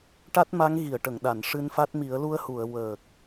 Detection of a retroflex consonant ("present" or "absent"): present